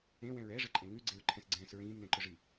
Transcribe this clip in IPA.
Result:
ẽ w ɛ̃ ɹ ɛ ʐ ə ǃʼ ẽ ŋ ʉ ɡ͡ǀ e ɹ ǃʰ ɛ̃ s ɡ͡ǀ ɛ̃ː s ɹ ĩː m n ɛ̃ ǃ ʊ ʐ i

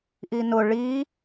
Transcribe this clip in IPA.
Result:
ʔ i n ʊ ɭ i

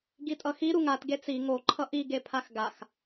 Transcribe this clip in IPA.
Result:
ɡ i tʼ ʌ x i ɾ u ŋ a t ɡ e t͡s i ŋ o ǃʰ ʌ ʔ i ɡ e pʰ a x ɡ a x

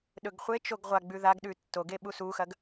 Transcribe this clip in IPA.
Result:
ɗ ɵ ɡ χʷ e t͡ʃ o ɡ ʁʷ a ɡ͡b ʉ ð a ɡ ɗ ʉ tː o ɡ e ɓ u s u x ɐ ɡ

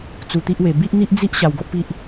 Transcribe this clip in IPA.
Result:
t͡s u˧ t̪ i˦ ʔ w e˧ b i˦ ʔ n̪ i˦ ʔ d͡z i˦ ʔ ɕ a˧ w ɡ o˦ ʔ p i˦ ʔ

